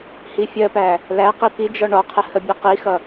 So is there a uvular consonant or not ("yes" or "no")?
yes